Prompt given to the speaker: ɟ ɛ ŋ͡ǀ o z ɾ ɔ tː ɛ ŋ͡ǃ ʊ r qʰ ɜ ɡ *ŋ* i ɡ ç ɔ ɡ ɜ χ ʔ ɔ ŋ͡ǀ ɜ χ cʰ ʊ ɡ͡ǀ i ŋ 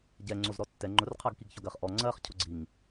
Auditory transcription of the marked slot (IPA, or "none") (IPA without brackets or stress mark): k